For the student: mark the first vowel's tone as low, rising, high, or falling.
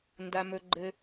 low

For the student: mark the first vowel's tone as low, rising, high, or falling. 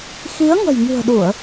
rising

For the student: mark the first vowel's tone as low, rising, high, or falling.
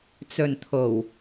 low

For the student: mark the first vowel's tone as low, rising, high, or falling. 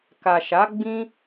low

